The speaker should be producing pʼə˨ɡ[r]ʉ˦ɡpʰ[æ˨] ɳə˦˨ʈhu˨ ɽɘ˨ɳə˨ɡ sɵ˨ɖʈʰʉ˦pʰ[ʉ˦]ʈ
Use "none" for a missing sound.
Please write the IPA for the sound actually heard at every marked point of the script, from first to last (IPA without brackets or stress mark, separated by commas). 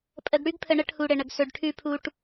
ɽ, ə˨, u˦